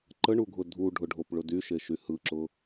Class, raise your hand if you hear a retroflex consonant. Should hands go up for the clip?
yes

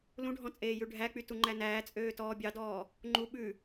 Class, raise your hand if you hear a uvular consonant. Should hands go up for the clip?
no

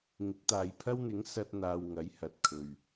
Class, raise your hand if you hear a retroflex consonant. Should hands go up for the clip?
no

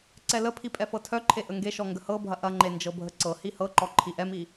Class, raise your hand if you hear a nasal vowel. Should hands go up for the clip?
no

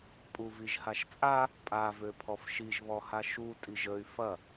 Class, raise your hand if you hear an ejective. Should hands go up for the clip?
yes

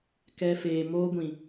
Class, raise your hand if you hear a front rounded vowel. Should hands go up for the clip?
no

